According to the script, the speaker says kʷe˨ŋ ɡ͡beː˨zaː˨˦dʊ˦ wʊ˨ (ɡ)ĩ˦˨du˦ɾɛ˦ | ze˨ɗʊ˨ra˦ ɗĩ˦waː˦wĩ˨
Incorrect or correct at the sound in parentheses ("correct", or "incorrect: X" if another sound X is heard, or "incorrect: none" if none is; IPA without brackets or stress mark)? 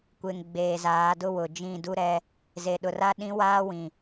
incorrect: d͡ʒ